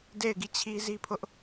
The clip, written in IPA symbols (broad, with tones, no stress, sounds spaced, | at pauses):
d e˦˨ ɪ̯ ɡ i˦˨ t͡ɕʰ i˦ z i˦ pʰ ʊ˦ ʔ